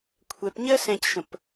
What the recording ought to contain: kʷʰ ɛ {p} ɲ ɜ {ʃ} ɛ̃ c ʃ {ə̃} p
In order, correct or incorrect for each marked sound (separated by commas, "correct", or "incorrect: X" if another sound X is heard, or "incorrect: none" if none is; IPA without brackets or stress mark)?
correct, incorrect: s, correct